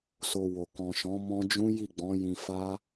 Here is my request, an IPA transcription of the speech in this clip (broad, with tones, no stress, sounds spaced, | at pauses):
s o˧ w o˨ k ɔ̃˨ ʃ ɔ̃˨˦ m ɔ̃˦ d͡ʒ ũ˦ j i˦˨ ɡ͡b ɔ̃˨˦ j ĩ˧ f a˦